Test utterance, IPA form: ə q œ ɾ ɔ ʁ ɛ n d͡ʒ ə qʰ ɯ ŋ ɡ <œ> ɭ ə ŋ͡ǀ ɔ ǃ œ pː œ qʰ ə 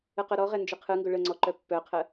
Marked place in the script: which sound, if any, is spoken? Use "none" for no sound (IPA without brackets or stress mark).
ɵ